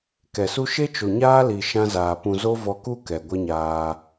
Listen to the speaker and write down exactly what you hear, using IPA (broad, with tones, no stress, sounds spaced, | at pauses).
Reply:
k ɛ˨ s u˦ ʃ e˦ t͡ʃ o˨ ɲ aː˦ l i˨ ʃ ã˦ z aː˨ p ũ˧ z o˦ v ɔ˧ k u˦ k ɛ˨ ɡʷ ə˦ ɲ aː˧